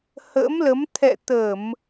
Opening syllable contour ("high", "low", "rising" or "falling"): rising